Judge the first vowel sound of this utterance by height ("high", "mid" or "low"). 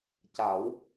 low